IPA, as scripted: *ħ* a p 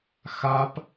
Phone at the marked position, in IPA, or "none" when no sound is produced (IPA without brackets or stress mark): x